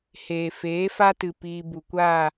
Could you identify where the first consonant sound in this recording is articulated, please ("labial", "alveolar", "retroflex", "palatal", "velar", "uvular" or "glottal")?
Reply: glottal